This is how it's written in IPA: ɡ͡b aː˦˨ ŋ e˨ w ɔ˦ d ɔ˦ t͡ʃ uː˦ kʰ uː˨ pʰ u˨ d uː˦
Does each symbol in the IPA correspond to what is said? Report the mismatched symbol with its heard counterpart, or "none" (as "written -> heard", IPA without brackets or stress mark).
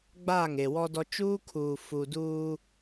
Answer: pʰ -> f